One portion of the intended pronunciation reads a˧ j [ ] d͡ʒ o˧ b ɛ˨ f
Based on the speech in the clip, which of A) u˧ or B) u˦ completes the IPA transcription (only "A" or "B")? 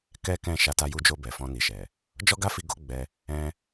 A